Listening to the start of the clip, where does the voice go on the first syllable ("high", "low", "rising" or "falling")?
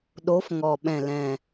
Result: rising